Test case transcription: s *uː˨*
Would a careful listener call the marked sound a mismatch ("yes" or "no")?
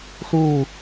yes